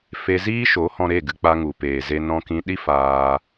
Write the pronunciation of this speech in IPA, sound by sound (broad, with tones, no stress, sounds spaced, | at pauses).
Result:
f e˧ z iː˦ ʃ o˨˦ h ɔ̃˧ ɾ e˦˨ ɡ ɨ˧ k͡p a˧ ŋ u˨ p eː˨ z e˧ n ɔ̃˧ k ĩ˧ ɗ i˦ f aː˧